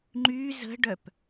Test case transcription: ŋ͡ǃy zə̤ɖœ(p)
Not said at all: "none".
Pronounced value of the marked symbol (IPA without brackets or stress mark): p